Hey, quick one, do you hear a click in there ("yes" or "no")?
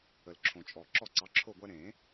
yes